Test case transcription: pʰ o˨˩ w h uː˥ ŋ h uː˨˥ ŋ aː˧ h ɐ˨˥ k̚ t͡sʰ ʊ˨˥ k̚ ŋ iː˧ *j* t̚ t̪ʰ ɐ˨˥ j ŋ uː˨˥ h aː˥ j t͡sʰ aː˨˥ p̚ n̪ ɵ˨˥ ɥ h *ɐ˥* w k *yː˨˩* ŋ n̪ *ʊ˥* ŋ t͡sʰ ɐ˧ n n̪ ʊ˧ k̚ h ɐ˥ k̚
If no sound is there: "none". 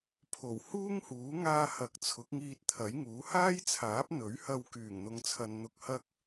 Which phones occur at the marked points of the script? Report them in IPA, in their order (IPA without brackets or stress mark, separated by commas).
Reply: none, ɐ˧, yː˨˩, ʊ˧